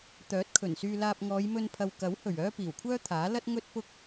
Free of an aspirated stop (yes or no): no